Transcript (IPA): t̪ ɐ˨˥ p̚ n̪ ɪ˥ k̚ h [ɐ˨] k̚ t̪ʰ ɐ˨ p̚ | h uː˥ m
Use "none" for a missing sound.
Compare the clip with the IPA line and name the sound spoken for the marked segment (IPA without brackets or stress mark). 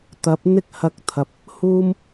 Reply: ɐ˧